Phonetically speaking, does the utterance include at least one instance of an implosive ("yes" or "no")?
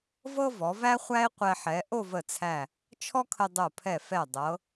no